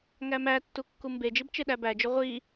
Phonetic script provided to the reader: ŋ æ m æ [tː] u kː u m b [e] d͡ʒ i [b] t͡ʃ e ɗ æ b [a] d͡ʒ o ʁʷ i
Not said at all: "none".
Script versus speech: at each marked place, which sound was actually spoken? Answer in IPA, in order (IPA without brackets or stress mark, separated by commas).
tː, e, b, æ